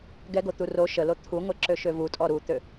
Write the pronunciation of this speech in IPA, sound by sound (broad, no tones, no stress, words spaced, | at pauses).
ɡɛɡot̪u ro ʃəlo t̪ʰuŋʷɛǁøʃø vutʼɔ ɾut̪ø